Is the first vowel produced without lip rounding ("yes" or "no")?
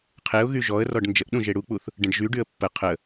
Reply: yes